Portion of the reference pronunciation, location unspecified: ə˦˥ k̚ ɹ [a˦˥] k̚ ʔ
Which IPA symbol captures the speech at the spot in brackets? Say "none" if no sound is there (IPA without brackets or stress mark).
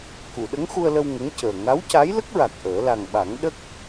a˨˩